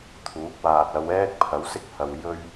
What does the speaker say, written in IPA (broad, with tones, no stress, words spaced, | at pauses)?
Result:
t̪ʰuː˨˥k̚ waː˨t̚ɐ˨˧wɛː˥k̚pʰɐ˨˥w sɪ˥k̚hɐ˨w jɵ˥ɥ